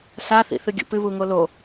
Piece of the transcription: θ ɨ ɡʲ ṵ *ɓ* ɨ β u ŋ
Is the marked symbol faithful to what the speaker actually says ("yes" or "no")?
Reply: no